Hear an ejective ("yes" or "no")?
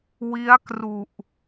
no